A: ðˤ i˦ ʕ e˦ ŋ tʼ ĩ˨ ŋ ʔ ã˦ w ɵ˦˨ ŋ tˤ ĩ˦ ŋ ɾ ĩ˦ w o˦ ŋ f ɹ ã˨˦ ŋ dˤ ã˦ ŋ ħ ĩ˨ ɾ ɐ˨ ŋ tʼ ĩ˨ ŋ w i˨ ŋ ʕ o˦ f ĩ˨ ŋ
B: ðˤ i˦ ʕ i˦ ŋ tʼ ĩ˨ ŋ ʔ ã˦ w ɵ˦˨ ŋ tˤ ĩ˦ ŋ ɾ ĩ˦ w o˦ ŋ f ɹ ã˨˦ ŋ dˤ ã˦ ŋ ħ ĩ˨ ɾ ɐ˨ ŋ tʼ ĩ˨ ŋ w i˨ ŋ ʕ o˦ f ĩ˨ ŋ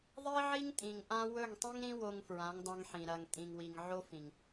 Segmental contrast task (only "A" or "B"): B